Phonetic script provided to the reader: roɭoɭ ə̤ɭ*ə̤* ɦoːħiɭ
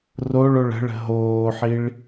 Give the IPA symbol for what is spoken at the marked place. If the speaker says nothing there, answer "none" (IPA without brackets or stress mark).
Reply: ə̤